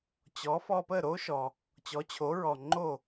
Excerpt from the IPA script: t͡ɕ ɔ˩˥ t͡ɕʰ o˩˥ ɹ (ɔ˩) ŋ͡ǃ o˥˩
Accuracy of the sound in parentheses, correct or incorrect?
correct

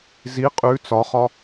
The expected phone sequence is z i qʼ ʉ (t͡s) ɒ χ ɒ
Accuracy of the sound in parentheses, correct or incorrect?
correct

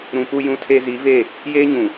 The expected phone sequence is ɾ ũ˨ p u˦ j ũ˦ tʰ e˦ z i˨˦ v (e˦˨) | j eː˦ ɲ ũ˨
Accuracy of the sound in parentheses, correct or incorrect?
correct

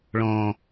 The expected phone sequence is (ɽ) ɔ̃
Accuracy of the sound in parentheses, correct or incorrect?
incorrect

